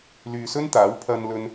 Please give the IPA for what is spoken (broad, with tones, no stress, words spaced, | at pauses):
lyː˨sɵ˥nt̪aː˨˥w pʰɐ˧nlɵ˧n